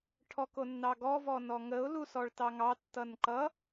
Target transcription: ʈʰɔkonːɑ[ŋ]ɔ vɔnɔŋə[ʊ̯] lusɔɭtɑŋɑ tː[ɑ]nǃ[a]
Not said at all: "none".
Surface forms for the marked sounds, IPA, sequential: ɡ, ʊ̯, ʌ, ʌ

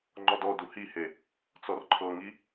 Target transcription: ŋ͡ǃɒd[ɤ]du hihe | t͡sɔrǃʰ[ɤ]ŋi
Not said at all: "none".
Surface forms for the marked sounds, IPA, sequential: ɔ, ɤ

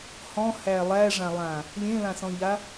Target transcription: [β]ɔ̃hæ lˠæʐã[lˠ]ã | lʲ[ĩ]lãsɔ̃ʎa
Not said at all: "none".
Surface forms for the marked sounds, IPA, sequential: h, lˠ, ẽ

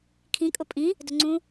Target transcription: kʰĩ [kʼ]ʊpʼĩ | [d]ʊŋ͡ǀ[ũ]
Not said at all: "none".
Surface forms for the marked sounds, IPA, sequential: kʼ, d, ũ

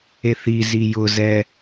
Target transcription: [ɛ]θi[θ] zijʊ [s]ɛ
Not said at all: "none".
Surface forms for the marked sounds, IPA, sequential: e, none, z

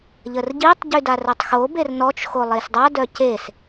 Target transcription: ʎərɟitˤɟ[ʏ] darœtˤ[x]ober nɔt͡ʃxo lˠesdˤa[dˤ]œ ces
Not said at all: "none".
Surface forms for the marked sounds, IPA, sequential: y, x, d

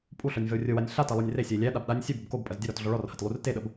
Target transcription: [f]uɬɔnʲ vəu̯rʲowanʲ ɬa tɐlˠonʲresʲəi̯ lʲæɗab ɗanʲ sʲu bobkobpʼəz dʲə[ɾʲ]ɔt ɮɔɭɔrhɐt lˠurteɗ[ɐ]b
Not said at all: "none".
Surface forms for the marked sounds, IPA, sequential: pʼ, ɾ, ə

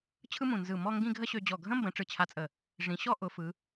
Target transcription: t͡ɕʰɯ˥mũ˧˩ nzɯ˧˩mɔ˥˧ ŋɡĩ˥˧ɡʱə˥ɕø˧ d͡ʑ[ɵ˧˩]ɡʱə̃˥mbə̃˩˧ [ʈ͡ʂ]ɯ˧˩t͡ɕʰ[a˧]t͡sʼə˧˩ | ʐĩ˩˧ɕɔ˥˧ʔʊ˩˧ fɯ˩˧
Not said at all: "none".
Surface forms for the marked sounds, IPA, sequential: ɔ˧˩, ʈ͡ʂ, a˧

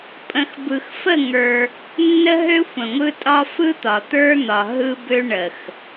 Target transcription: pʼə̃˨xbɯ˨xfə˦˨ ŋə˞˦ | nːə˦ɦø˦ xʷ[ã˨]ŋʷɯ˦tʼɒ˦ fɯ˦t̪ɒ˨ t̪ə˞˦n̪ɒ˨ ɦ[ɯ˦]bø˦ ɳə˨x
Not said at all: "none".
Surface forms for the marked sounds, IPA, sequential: ə̃˨, ɯ˦

